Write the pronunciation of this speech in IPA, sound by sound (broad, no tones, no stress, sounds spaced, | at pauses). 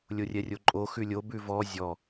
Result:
lʲ o rʲ ɛ rʲ o ǃʼ o x ʉ lʲ o b ʉ v ɔ zʲ ɔ